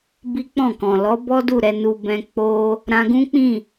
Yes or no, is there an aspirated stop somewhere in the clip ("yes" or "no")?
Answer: no